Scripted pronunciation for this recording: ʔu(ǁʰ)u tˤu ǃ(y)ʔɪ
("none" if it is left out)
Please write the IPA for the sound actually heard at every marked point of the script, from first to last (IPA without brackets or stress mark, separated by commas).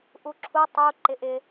ǁʰ, ɪ